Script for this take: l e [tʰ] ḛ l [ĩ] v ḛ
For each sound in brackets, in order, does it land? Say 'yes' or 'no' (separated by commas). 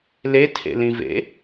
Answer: yes, yes